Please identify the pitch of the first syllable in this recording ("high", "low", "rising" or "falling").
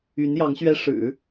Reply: rising